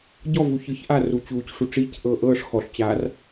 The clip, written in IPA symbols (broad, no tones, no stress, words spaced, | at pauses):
ɟɔvu çɯçʔaːruː t͡ɕuːcʂu ʈ͡ʂiːcʔɤː ʔɤːʂ xɔɬt͡ɕaːr